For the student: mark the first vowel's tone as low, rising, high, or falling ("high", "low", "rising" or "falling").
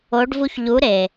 rising